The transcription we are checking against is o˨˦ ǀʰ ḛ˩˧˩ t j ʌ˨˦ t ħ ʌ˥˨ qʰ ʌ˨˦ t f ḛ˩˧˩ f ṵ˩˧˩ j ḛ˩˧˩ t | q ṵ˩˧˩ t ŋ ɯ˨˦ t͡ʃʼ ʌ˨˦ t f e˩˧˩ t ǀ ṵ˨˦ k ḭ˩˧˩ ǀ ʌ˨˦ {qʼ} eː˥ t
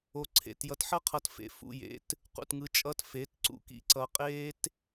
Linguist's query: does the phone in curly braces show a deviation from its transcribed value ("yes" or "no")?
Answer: no